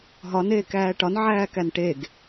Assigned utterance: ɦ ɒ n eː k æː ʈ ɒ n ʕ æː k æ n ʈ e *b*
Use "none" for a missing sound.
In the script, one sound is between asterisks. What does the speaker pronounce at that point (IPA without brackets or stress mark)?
ɡ